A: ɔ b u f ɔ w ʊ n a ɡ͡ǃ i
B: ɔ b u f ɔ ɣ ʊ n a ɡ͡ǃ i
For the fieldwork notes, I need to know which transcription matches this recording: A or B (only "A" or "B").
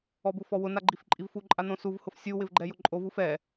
A